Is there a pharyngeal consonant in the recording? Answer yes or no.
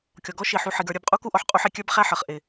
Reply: yes